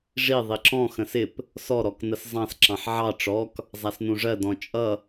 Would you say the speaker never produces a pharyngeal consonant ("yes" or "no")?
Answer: no